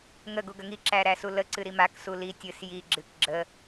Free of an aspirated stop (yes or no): yes